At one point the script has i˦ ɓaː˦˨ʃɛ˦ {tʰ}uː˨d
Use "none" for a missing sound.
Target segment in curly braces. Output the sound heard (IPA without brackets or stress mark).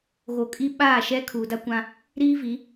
kʰ